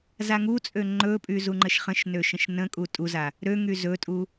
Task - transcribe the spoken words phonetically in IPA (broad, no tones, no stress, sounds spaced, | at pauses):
z a ŋ u t͡sʼ ø ŋ͡ǃ ɵ pʼ y z u ŋ͡ǃ ə ʃ χ ə̃ ʃ n ø ʃ ə̃ ʃ n ə̃ kʼ u tʼ u z a | ɾ ø ŋ y z ɵ tʼ u